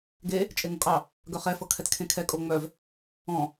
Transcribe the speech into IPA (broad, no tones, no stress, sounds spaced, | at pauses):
ɡ e | t͡ʃʼ e ŋ o kʼ ɑ | ɡ œ χ ɛ f ɤ kʰ ɛ t kʰ ẽ kʰ ɛ kʼ o ŋ͡m œ v | ɔ̃